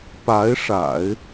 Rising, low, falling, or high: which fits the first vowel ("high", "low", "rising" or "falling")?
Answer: rising